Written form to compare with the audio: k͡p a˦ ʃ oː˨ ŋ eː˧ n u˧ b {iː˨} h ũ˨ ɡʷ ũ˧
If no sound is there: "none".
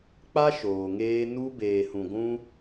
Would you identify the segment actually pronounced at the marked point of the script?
eː˨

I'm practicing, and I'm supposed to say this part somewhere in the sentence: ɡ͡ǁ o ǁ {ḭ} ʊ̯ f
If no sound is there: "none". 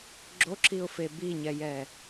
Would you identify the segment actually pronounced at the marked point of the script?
i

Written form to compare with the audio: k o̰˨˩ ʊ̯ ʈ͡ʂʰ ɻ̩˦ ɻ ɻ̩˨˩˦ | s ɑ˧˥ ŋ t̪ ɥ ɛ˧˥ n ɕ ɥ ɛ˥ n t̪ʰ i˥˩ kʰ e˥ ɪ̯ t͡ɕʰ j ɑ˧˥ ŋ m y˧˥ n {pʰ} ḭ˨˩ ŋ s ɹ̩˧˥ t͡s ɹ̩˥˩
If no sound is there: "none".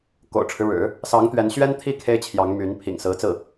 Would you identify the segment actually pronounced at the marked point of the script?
pʰ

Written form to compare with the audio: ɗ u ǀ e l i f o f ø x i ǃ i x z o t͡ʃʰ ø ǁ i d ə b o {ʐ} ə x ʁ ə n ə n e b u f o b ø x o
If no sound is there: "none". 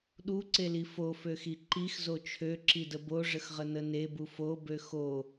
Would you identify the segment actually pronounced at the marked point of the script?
ʐ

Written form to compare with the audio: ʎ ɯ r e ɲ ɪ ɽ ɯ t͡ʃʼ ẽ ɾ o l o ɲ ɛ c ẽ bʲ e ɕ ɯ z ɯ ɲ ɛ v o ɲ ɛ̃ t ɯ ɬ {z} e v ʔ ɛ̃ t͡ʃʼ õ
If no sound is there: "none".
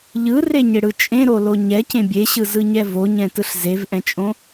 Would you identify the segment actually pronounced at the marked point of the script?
z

